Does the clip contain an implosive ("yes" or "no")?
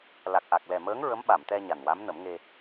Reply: yes